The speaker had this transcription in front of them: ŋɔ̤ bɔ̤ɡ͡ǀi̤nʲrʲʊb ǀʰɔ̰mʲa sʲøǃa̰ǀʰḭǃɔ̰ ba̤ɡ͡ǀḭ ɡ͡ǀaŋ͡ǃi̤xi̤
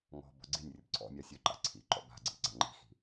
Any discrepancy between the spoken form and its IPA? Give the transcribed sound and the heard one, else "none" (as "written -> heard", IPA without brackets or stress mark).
none